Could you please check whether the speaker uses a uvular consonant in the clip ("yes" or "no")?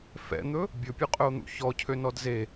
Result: yes